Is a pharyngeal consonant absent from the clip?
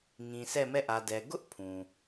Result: yes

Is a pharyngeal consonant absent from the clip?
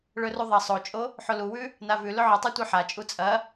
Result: no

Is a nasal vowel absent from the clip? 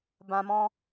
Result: no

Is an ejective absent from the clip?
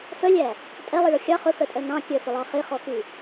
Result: no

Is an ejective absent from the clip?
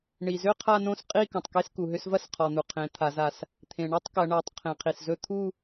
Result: no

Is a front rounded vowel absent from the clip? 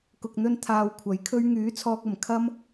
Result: no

